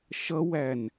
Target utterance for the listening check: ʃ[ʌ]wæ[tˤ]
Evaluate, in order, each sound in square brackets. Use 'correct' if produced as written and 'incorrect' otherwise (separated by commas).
correct, incorrect